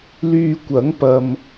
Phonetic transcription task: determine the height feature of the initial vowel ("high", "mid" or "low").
high